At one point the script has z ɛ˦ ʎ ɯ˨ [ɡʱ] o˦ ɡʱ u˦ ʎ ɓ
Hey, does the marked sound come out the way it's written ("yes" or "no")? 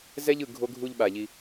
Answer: yes